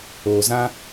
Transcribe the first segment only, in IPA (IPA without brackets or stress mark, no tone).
oː